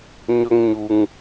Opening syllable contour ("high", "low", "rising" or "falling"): high